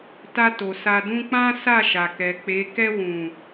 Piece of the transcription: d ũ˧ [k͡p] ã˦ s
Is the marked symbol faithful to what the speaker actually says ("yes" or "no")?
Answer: yes